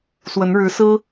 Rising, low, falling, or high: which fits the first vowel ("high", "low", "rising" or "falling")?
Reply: rising